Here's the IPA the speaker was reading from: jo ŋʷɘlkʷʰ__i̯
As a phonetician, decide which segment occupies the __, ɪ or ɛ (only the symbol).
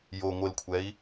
ɛ